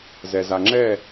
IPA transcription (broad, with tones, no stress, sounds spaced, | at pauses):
z ɛ˨ z a˨ ŋ͡ǁ ɛ˦˨